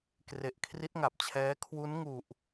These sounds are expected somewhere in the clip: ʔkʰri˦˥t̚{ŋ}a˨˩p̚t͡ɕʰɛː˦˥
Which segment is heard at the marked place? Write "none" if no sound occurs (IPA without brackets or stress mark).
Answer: ŋ